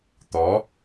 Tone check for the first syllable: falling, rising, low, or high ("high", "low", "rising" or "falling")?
rising